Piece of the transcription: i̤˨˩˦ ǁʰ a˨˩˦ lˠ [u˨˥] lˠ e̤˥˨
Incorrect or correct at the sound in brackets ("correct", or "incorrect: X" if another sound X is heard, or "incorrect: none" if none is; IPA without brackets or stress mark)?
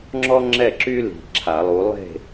correct